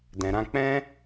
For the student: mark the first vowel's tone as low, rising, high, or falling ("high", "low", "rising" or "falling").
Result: low